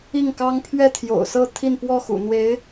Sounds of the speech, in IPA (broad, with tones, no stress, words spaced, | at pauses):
i˥˩ŋkɑ˥ŋ pʰɥɛ˥˩t̪ʰjo̰˨˩ʊ̯sɤ˥˧ t̪ʰi˥˧npwɔ˥˩xṵ˨˩n̪we˧˥ɪ̯